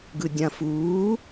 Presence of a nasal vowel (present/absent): present